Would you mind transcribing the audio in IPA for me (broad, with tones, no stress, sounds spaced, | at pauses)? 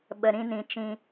ɓ ə˨ ɾ ĩ˧ n ĩ˨ t͡ʃ ĩ˧